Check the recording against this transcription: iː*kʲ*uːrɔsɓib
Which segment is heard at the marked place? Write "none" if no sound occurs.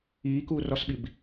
k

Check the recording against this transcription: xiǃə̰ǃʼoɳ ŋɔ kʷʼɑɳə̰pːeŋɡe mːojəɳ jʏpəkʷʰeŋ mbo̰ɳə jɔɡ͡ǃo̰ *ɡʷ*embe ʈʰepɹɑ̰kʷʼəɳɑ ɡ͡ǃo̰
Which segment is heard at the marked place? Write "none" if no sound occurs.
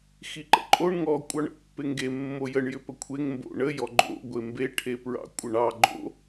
ɡʷ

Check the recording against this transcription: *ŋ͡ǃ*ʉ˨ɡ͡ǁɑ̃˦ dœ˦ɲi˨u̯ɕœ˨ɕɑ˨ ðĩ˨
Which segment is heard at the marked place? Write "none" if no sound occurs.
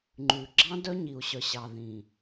ŋ͡ǃ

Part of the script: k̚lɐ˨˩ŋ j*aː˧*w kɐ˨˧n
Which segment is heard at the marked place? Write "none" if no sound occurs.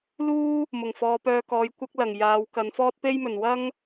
aː˨˧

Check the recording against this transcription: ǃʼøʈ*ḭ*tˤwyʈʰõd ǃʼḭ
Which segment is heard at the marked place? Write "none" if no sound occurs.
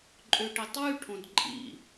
i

